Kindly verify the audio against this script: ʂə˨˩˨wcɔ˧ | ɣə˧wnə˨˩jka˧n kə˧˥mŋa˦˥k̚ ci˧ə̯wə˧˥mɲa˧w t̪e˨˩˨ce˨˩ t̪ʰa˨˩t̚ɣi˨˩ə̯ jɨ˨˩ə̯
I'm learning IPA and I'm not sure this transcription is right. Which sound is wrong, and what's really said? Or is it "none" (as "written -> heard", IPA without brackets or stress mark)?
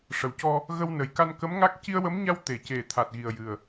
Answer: none